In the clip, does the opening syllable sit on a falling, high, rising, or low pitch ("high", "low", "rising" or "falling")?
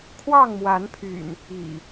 falling